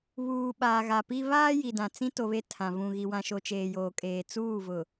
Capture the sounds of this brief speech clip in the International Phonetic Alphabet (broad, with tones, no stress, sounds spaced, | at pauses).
β uː˨ ɓ aː˨ ɣ a˨ p i˦ β aː˦ j i˨ d ã˨ t͡s ĩ˦ t o˨ β e˦ tʰ ã˨ v ũ˨ ɣ i˨ w ã˨ ʃ o˨ t͡ʃ eː˨ j oː˨ kʼ eː˨ t͡s uː˦˨ v ʊ˨